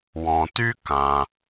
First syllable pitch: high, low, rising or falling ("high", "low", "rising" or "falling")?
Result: low